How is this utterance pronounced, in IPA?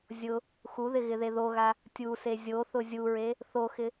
zʲ ʊ | x u ð ɪ ɣ ɪ ð e ð o ɣ a | tʲ u s e zʲ o θ ʊ zʲ u ɹ e | θ o x ɪ

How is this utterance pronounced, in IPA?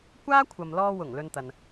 kʷ aː˥ kʷʰ ɐ˨ m l ɔː˧ w ʊ˨˩ ŋ l ɵ˧ n t̪ ɐ˨ n

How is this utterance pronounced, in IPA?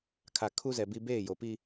kʰ a˨ kʰ u˦ z ɛ˨ b i˦ b eː˦˨ j o˨ p i˦

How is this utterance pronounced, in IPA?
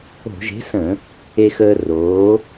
o̤˧˩˧ ʒ e̤˨˥ s ə̃˧˩˧ | e˧ x əː˧ r oː˨˥

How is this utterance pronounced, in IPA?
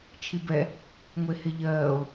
t͡ʃʰ i b ɛ | ŋʷ e h e ʎ ɜː o̯

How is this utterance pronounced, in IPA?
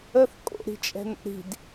ə θ kʼ o̰ ɾ i̤ t͡ʃʼ ɛ̤ n o̰ ɾ i̤ d

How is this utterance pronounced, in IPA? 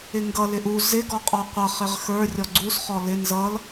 ɪ ŋ ɡ ʌ l ɪ ʔ u z ɪ ɡ ɔ qʼ ɔ qʷ ʌ χ ɪ ʁ x ə˞ rʲ ɔ ɡ͡ǀ u s χ ɔ l ɪ n z ʌ l

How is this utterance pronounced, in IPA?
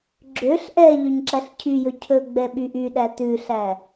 ɡ͡ǁ ø ɬ ʔ ɛ ʎ ø ɲ ǁ æ ɬ cʰ y j ɵ cʰ ɵ ɡ͡b ɛ ɓ y ʔ y ɗ æ t ʉ ɬ æ

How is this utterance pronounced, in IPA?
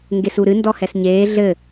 ŋ ɡ e s u ɾ ɨ n d ɔ h ɛ s ɲ eː ɮ ɘ

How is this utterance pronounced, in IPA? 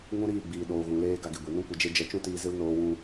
ŋ ũ˦ ɾ iː˦˨ ɡ͡b iː˨ ɗ oː˨ ɣ ũ˨ l eː˧ ɡ a˧ ɡ e˨ ɡʷ e˨ n ũ˦ kʷ ə˨˦ d͡ʒ e˦ d͡ʒ ɛ˧ t͡ʃ ũ˦ t iː˧ z ɨ˦ l n oː˧ w ũ˧

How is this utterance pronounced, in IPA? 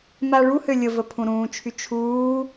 m a ɭ u h ø lʲ ə v ə pʰ ũ ɾ ũː t͡ʃʰ y t͡ʃʰ uː

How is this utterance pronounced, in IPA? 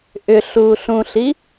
ʔ ʏ ɬ uː ɬ ũ ɬ i

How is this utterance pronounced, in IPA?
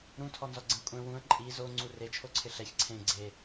ɾ ũ tʰ ɔ n z ɔ ɡ͡ǀ ẽ kʷʼ ɛ̃ w ũ ə̯ ǃʼ i z o ŋ͡ǀ u r e t͡ʃʰ o ǀʰ ɪ ɬ ɛ ç ǀʰ ẽ ɡ͡ǀ e

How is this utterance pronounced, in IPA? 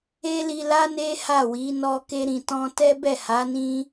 e˦ l i˧ l a˦ n e˦ h a˦˨ w i˨˦ n ɔ˧ k e˧ ɾ ĩ˨ t ɔ̃˧ t ɛ˦ b ɛ˦˨ h a˨˦ n ĩ˦

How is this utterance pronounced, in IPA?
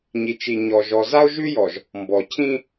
ɲ i˨ t͡ʃ i˨ ɲ ɔ˨ ʒ ɔ˨ z a˦ o̯ ʒ ʉ˦ j ɔ˨ ʒ | m b ɔ˨ cʰ ĩ˦

